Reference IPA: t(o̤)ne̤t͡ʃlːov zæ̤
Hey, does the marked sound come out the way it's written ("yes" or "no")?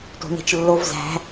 yes